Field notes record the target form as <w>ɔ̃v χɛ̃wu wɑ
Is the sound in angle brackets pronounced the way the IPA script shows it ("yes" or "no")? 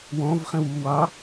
yes